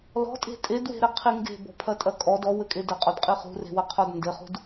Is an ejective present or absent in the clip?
present